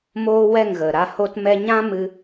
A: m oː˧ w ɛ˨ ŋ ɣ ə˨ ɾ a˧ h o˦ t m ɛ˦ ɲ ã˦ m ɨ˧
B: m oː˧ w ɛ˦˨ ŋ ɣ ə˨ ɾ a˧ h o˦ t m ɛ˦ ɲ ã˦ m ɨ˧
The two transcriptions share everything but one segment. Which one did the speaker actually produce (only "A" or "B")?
B